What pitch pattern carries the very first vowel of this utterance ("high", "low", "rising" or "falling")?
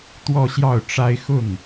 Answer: falling